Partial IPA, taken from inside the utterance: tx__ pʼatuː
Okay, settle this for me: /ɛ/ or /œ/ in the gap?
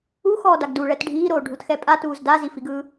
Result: ɛ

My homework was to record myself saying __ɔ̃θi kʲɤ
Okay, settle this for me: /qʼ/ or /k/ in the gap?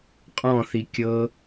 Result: qʼ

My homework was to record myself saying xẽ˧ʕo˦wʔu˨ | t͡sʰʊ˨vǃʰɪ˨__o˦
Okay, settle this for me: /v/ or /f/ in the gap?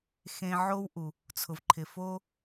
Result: f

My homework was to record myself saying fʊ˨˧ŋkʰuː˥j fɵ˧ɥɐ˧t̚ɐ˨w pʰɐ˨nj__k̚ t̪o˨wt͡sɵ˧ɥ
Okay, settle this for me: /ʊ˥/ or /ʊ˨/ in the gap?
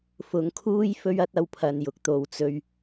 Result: ʊ˨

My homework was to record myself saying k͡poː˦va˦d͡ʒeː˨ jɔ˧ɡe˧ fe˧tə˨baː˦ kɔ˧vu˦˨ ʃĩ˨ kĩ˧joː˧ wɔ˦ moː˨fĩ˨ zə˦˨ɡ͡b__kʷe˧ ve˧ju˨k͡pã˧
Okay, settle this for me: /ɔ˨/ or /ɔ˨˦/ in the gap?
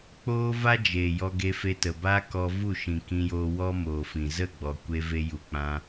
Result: ɔ˨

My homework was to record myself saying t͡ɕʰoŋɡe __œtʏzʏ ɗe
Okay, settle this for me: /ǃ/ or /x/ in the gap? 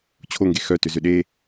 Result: x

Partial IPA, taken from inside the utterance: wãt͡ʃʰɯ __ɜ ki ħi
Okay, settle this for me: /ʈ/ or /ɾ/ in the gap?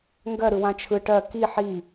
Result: ʈ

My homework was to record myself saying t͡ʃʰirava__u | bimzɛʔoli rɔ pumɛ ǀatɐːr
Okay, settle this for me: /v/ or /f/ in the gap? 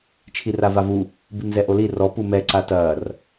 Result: v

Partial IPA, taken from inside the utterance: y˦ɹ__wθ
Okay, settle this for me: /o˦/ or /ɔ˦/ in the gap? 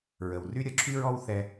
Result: ɔ˦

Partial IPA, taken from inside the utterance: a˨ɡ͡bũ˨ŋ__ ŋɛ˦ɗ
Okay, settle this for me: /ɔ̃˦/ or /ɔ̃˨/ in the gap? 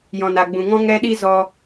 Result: ɔ̃˦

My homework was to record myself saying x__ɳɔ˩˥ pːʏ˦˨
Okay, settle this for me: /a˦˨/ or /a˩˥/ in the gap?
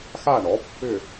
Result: a˦˨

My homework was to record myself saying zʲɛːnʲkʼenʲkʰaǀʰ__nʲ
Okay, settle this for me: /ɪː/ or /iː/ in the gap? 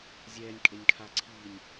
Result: iː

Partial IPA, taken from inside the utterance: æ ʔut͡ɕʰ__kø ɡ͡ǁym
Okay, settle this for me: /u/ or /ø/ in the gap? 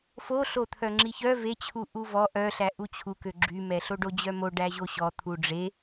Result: u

